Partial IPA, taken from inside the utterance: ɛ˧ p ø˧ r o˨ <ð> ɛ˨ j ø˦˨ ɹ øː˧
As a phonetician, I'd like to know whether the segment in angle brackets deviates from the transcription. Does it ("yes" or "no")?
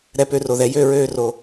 no